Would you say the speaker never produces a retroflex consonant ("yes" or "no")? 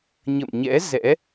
yes